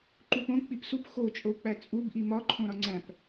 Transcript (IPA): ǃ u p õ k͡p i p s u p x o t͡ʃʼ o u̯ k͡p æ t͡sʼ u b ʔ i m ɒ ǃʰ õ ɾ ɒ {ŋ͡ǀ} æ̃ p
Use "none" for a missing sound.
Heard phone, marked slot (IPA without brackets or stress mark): ŋ͡ǀ